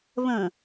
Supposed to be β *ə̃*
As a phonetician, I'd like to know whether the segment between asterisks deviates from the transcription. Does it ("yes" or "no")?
no